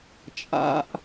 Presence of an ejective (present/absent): present